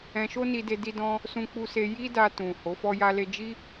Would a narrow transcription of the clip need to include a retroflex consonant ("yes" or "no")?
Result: no